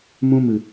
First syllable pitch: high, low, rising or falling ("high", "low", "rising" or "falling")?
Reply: high